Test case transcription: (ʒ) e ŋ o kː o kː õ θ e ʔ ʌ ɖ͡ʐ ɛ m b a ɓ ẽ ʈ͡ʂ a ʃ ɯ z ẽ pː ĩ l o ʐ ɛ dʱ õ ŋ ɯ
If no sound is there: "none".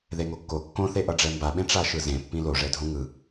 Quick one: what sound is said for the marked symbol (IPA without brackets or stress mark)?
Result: ð